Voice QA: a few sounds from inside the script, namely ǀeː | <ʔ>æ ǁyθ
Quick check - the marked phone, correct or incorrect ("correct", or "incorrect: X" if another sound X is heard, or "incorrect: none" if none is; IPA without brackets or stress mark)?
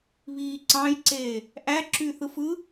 correct